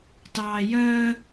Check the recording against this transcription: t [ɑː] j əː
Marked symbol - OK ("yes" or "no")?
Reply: yes